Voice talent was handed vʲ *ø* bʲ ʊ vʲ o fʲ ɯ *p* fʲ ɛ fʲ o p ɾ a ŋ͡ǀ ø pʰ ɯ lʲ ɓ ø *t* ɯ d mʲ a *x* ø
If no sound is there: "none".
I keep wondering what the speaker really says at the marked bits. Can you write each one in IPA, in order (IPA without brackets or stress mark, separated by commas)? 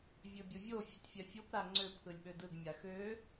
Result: ø, t, d, x